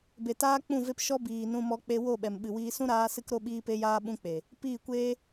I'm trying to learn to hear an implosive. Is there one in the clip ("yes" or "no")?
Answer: yes